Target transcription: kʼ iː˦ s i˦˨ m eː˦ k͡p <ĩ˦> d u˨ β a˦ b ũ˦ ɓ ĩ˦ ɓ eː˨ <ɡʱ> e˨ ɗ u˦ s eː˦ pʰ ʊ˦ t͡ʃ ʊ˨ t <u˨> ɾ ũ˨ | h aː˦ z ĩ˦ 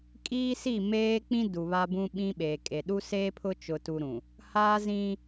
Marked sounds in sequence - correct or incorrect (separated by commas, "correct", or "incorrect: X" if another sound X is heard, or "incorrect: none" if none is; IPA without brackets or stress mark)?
correct, incorrect: kʼ, correct